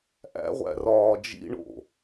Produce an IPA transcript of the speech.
ʔ æ̰ ʁʷ æ̰ r ɒː d͡ʒ ḭ ɳ o̰

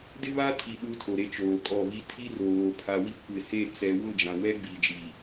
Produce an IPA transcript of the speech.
d ɪ˦ β a˦ tʰ i˨ ɗ uː˦ tʰ o˨ ɾ e˦ t͡ʃ oː˨ kʼ ɔ˦˨ β i˦ tʰ i˦ r oː˨ pʰ a˨ w i˦ kʷ ɪ˨ h e˦˨ t͡s ɛ˨ w ʊ˦˨ d͡ʒ ã˨ w ɛ˦ ɡ͡b i˨ d͡ʒ i˨

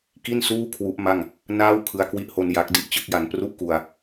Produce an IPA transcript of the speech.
k i˥˩ n s uː˥˩ kʰ w u˦˥ ʔ m a˥˩ ŋ | n aː˥˩ w kʰ ɯ˧ a̯ k w i˦˥ ʔ h o˧ n j a˦˥ k̚ d i˥˩ ʔ t͡ɕ ɯ˥˩ k̚ j a˧ n p r u˥˩ ʔ k u˧ a̯

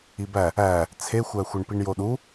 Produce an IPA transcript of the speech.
i b æ | æ | t͡sʰ e xʷ æ xʷ e ɳ p i ɳ j o ɗ u

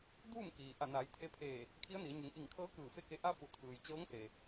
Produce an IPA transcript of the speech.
d uː˥˨ m k iː˩ ʔ a˧˩ n aː˩˧ j t̪ʰ e˧˥ pʰ eː˧˩ | kʰ i˧˥ ə̯ n i˩˧ ə̯ ɲ u˩˧ ŋ ʔ i˧˩ ŋ kʰ ɤː˧˥ k ɯː˧˩ f e˥˨ k e˧ ʔ a˧ f u˩ t̪ʰ ɯː˩ j t͡ɕ ɤː˧˥ ŋ s e˩

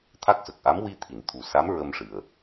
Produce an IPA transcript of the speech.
t̪ʰ a˦˥ k̚ s ə˨˩ k̚ ʔ a˧˥ m w i˧ t̪ʰ i˨˩˨ n t̪ʰ u˨˩ s a˧˥ m ɹ ə˧ m ʂ ɨ˨˩ ə̯

